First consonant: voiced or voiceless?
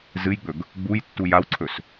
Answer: voiced